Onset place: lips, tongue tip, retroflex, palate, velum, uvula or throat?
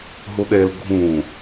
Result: throat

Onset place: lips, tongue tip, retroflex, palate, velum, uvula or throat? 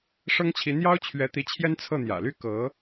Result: retroflex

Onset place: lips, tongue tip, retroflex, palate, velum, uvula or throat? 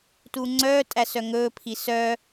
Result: tongue tip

